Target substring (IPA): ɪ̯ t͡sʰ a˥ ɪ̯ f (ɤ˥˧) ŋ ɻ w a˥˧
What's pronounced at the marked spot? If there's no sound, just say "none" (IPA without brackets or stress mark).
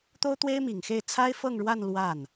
ɤ˥˧